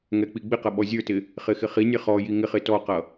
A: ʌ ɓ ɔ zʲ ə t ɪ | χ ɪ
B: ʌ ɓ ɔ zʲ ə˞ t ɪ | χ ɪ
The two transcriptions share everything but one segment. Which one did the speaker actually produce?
B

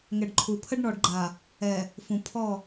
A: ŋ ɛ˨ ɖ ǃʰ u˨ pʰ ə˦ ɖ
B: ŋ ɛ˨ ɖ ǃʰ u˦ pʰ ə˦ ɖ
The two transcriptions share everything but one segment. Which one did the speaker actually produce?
A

